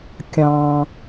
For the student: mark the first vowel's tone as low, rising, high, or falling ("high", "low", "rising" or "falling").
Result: high